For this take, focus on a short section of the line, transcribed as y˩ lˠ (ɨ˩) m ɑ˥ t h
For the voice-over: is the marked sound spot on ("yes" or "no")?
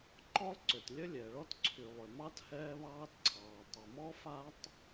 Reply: no